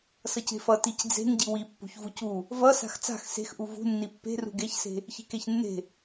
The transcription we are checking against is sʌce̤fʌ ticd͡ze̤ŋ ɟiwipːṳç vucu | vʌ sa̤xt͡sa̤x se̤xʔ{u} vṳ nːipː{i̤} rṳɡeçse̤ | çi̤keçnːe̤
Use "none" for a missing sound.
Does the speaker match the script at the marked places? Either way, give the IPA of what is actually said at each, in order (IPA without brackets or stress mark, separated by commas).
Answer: u, e̤